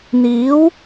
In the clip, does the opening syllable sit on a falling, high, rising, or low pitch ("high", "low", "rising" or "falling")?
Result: rising